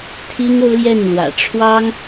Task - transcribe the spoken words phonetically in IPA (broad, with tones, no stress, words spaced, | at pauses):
t̪ʰi˥ŋ o˥ʊ̯ljɛ˥˩nlwä̰˨˩ ʈ͡ʂʰwɑ˥ŋ